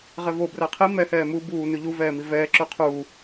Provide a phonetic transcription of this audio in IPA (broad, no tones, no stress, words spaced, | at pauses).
ʁɛvo bræqʰi mɛ hɛːmu buː nʉʎu vɛːmivɛː ǁʉqʰuː